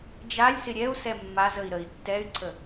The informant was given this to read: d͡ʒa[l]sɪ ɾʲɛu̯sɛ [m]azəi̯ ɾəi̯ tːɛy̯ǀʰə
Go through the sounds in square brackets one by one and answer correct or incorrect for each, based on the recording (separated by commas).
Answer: incorrect, incorrect